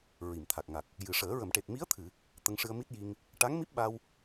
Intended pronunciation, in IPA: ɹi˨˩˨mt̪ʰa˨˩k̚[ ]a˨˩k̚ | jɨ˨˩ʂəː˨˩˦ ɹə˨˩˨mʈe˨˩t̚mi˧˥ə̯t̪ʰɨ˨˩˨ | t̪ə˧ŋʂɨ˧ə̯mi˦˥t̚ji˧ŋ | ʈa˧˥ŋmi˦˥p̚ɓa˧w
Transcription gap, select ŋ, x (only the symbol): ŋ